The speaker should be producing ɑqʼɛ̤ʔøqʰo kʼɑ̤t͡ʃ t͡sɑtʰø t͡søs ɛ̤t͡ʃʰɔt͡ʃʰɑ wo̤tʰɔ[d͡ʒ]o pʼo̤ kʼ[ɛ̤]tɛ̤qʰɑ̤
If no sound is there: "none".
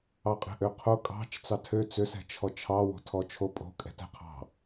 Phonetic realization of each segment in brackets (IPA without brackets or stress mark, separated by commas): t͡ʃʰ, ɛ̤